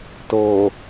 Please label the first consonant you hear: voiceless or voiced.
voiceless